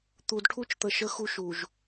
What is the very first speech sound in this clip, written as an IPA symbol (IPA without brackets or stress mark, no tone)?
t̪